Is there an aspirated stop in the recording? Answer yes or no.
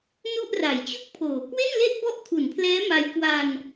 yes